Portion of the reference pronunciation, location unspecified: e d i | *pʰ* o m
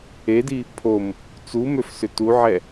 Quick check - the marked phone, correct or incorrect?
correct